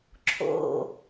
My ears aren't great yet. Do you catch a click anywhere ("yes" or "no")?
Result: yes